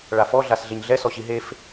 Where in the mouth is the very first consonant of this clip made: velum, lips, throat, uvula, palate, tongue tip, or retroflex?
retroflex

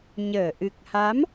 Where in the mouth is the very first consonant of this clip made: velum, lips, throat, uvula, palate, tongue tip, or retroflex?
palate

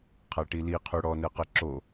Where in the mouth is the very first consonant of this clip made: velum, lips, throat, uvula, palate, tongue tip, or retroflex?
uvula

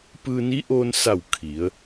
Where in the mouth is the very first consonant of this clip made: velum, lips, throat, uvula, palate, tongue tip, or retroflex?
lips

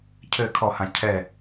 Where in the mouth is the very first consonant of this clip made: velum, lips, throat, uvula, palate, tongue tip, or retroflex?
palate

